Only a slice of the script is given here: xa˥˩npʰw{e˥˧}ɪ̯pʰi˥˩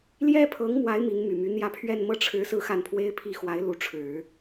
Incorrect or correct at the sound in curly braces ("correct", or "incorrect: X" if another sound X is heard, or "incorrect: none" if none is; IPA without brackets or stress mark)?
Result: incorrect: e˥